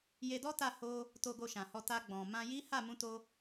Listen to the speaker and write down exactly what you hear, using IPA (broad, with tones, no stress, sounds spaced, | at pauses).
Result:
j e˧ d ɔ˦ t a˦˨ h o˧ | t o˧ ɡ o˧ ʃ ã˨ h ɔ˧ t a˧ ɡ͡b ɔ̃˨ m ã˧ j i˦ h a˦˨ m ũ˧ t o˧